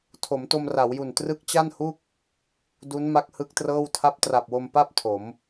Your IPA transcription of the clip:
tʰ o˩˦ m t o˧ m r a˩˦ w j u˨˩ n t r ɯ˦˥ k̚ t͡ɕ a˥˩ n h u˥˩ k̚ | d u˦˥ n m a˦˥ k̚ h ɯ˦˥ k̚ t r ɤː˥˩ w tʰ a˦˥ p̚ t r a˨˩ p̚ w o˧ m p a˥˩ p̚ tʰ o˩˦ m

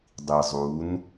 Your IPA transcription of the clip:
dˤ i zˤ u n

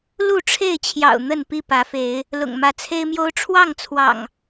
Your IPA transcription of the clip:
l u˥˨ ʈ͡ʂʰ e˥˨ ɪ̯ t͡ɕʰ j ɑ̰˨˩ ʊ̯ n̪ ə˥˨ n p i˥˨ p ä˨˦ f e˨˦ ɪ̯ | l ʊ̰˨˩ ŋ m ä˨˦ t͡sʰ e˦ ɪ̯ m j o˦ ʊ̯ ʈ͡ʂʰ w ɑ˥˨ ŋ t͡sʰ w ɑ̰˨˩ ŋ

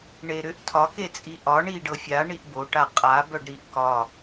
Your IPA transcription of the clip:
ɳ e ɾ ʏ ʔ tʰ ɒ k e t͡sʼ i ʔ ɒ ɳ i ɖ ɤ fʲ a ɳ i ʔ b o ʈ a qʼ a b œ ɖ ɾ i ʔ k ɒ

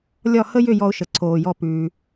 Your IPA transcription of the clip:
lʲ ɒ˥˧ h ə˥ j ʏ˥˧ j ɔ˥ ʊ̯ ʃ ə˧ ǀʰ oː˧ j ɔ˥˧ p ʉː˧

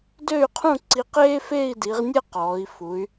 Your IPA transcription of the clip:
d ø˥˧ y̯ qʰ ũ˥˧ ǀ i˧ q eː˥ f eː˥˧ i̯ d i˩˧ ʁ nʲ ɛ˥˧ q ɔː˩˧ i̯ f u˩˧ y̯

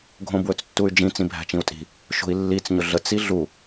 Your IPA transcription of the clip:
ɡʱ õ b w ɵ t͡s tː u y̯ d͡ʒ ĩ t͡s ĩ bʱ æ̤ t͡ʃ ĩ u̯ tʼ i̤ | ʃ o̤ i̯ lː i t͡s ɲ ʊ ɮ ə t͡s i ɮ u

